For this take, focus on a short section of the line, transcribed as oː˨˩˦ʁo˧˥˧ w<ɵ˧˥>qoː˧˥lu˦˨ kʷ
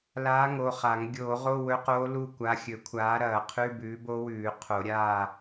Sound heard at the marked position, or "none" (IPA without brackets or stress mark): ɵ˧˥